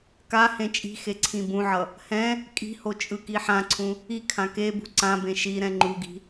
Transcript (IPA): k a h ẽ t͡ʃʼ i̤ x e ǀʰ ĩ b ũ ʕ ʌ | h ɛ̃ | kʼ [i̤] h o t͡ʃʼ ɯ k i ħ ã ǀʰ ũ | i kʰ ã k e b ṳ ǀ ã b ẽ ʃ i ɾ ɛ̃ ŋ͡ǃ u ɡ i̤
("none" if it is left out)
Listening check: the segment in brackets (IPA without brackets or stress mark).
i̤